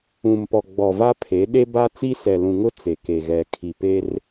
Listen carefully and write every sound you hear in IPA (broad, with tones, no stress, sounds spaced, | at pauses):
ũ˨ m p ɔ˨ ɡ͡b ɔ˨ v a˦ pʰ e˨˦ ɗ e˦ b a˦ t͡s i˦ s ɛ˨ l ũ˨ ŋ ʊ˦ t͡s e˨ k e˨ ɣ ɛ˨ kʰ i˨ p e˦ r